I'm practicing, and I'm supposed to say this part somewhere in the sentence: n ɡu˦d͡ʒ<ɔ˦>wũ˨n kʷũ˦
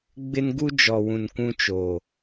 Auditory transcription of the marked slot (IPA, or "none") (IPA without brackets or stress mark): ɔ˨